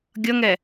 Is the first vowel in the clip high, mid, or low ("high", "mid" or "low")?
mid